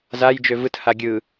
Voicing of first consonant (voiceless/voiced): voiced